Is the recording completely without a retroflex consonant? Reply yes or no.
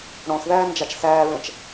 no